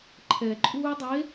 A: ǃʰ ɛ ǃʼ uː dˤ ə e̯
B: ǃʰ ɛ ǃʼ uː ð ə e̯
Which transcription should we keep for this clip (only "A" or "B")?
A